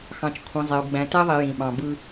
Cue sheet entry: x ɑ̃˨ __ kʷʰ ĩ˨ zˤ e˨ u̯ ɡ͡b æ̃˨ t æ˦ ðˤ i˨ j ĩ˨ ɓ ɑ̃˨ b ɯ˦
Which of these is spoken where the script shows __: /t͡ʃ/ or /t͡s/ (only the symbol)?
t͡ʃ